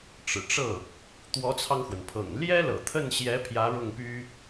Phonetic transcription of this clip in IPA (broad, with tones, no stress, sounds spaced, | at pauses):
ʈ͡ʂ ɻ̩˨˩ ʈ͡ʂ ɤ˥˩ | t̪ w ɔ˧˥ t͡sʰ ɑ˧ ŋ x w ə˩ n pʰ ɤ̰˨˩ ŋ l j ɛ˥ l ɤ̰˨˩ t̪ʰ ə˥˩ n ɕ j ɛ˧˥ pʰ j ä˧˥ ɻ ʊ˥˩ ŋ p y˥